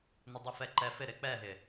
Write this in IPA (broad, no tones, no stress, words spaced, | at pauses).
nɛdˤʊfɛǃɛ fɪ ɾɪk͡pɛɦɪ